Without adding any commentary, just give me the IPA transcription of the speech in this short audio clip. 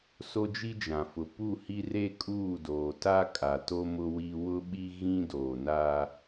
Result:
s o˦ d͡ʒ i˦ d͡ʒ ã˨ f ʊ˨ p u˦˨ h i˦ r e˦ kʼ uː˦˨ d oː˨ t a˦ kʼ a˨ t o˦ m ʊ˦ w i˦ w ʊ˦ ɓ i˦ ɣ ĩ˦ d oː˨ n aː˦

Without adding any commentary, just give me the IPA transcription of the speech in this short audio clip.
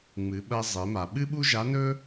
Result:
ŋ͡m ɨ˩˧ ɓ ɐ˧ zˤ e˩˧ m a˩ ɓ ɨ˥ ɓ u˥ ʒ a˧˥ n ɵ˥

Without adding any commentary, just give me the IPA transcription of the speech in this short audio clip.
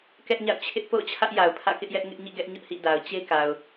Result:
k ɛ˦ ʔ ɲ a̰˦˨ ʊ̯ t͡ɕʰ ɪ˦ ʔ p o̰˦˨ ʊ̯ t͡ɕʰ ä˦ ʔ j a˨ ʊ̯ pʰ ä̰˦˨ k ɪ˦ ʔ j ɛ˦ ʔ ŋ ɪ˦ ʔ ɲ ḭ˦˨ ɡ ɛ˦ ʔ ɲ ʊ˦ ʔ h ḭ˦˨ d a˨ ʊ̯ t͡ɕ e˦ k a˨ ʊ̯

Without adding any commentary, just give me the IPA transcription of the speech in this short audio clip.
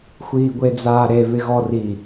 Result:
xʷ iː ɡʷ e d͡z aː ɾ e β ɪ ɣ ɔ r i

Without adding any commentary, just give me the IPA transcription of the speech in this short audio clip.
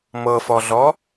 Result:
m ɤ f ɔ ɮ ɔ

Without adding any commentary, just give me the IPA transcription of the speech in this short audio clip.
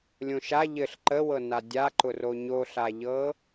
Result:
lʲ õ ʃ a ʎ ɘ ɬ ǃ ə w ɤ n a dʲ a ǃ ʊ r o ɲ o ɬ a ʎ ɤ

